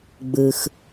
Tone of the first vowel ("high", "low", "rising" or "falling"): low